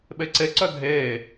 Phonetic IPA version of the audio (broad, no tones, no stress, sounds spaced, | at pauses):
ɓ e ǀ e ǀ œ dʱ e